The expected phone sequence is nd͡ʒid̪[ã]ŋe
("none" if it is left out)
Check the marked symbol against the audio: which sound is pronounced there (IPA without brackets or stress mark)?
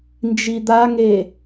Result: a